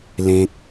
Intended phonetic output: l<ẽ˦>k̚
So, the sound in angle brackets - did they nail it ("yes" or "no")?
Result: yes